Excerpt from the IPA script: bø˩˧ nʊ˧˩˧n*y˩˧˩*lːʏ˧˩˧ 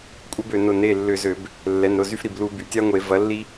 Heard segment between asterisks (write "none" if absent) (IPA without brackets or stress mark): e˩˧˩